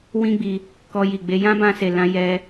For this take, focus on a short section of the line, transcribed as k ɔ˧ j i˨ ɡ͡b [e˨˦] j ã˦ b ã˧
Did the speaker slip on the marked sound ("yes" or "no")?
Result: no